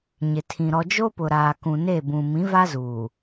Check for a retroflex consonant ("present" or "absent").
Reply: absent